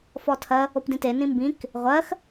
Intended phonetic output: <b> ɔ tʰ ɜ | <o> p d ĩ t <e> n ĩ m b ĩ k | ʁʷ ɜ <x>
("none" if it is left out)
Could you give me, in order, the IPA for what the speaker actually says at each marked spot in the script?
f, o, e, x

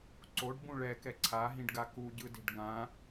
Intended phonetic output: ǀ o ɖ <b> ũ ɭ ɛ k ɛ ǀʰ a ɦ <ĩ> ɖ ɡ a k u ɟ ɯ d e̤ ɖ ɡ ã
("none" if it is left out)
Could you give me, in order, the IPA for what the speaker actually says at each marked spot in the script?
b, ĩ

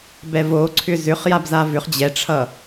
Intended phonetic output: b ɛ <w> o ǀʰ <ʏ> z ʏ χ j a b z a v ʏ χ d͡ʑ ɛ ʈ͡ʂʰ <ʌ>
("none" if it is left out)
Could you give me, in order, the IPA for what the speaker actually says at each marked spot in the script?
v, ʏ, ʌ

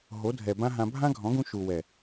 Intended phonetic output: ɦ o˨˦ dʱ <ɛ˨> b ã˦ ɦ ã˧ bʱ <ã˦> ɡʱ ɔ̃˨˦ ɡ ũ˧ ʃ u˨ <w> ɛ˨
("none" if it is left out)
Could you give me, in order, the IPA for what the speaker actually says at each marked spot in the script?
ɛ˨, ã˦, w

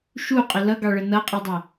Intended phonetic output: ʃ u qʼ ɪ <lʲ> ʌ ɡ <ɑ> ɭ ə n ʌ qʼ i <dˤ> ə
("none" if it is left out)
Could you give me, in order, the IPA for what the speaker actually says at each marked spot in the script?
l, ɑ, dˤ

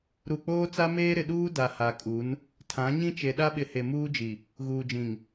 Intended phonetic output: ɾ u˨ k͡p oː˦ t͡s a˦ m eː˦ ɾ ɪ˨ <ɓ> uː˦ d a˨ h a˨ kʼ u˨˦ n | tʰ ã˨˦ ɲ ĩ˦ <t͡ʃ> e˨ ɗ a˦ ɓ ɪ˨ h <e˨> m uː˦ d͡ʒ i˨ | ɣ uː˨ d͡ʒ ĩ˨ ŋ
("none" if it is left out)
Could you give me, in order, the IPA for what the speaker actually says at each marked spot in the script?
ɗ, t͡ʃ, e˨

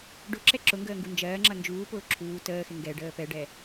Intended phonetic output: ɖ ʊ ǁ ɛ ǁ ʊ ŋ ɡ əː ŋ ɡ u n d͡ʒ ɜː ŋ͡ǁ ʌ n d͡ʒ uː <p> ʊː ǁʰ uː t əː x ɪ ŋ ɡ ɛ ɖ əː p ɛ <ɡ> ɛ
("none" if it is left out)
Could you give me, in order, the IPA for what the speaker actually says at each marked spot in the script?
p, ɖ

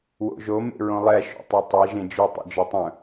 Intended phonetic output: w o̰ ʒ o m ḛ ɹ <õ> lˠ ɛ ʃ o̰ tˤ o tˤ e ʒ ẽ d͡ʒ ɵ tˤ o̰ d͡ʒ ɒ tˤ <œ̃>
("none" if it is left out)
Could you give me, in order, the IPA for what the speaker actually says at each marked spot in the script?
õ, œ̃

